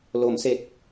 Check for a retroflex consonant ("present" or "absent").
absent